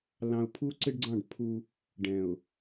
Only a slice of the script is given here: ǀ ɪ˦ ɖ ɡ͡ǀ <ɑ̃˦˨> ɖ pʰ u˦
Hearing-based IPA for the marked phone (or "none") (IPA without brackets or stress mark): ɑ̃˦˨